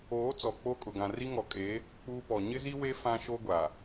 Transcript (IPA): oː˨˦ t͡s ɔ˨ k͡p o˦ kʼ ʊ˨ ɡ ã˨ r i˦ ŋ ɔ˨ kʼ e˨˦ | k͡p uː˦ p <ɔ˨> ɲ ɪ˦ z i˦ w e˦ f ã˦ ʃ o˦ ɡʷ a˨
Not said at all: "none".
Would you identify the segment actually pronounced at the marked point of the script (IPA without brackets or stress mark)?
ɔ˨